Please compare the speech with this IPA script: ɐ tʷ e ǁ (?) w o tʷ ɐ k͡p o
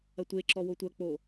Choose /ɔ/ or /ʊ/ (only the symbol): ɔ